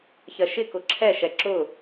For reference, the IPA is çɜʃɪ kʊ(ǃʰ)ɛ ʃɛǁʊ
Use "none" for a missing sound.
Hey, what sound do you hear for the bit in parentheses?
ǁʰ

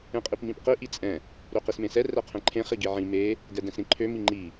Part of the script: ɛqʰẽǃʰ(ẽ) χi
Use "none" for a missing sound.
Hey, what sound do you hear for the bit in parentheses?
ẽ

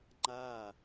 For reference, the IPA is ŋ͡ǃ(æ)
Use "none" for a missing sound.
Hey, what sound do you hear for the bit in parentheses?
a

